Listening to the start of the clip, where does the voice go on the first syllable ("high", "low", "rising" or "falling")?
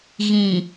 low